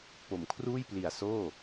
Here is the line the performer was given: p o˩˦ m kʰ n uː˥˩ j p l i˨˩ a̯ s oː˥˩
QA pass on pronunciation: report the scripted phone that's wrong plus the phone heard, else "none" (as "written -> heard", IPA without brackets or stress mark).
n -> r